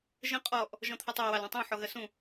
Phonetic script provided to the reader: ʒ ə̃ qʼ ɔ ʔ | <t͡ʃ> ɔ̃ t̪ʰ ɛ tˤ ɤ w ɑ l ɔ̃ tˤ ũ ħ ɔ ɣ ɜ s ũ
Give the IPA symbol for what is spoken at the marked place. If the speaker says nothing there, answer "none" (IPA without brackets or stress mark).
ʒ